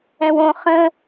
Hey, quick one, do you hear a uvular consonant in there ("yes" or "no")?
yes